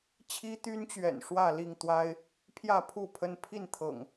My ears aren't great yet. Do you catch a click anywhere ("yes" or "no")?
no